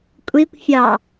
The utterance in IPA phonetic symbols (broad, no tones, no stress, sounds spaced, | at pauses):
kʷʼ i kʷ fʲ ɑ